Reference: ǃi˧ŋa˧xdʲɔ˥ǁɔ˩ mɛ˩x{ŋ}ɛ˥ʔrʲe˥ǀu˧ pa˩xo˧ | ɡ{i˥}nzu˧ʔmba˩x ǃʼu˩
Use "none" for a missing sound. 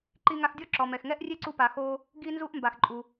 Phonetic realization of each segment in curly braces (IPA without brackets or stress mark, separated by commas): ŋ, i˧